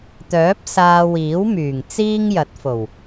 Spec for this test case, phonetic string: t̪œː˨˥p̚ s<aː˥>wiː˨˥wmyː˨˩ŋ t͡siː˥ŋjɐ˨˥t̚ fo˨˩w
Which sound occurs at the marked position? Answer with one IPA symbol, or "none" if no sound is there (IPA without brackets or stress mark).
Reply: aː˧